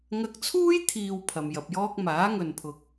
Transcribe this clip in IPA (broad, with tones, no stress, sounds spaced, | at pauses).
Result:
ŋ ɐ˧ k̚ t͡sʰ uː˥ j t̪ʰ iː˨ w pʰ ɐ˨ m j ɐ˨ p̚ j ɔː˥ k̚ m aː˨˥ ŋ ɵ˨ n pʰ ʊ˨ k̚